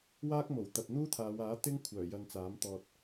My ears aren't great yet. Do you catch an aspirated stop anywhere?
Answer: yes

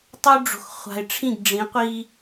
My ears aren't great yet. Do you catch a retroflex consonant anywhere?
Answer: yes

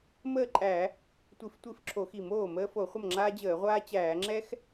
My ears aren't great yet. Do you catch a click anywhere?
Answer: yes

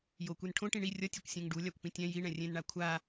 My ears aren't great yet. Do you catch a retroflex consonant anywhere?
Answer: yes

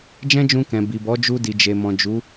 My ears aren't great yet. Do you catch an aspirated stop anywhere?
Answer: no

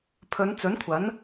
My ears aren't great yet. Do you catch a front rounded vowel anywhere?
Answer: no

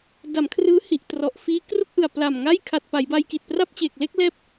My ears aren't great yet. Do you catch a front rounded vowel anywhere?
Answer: no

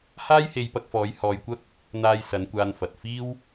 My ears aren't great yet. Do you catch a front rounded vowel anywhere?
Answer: no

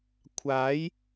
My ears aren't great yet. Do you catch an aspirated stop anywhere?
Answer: yes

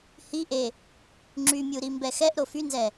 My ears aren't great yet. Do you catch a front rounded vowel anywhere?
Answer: yes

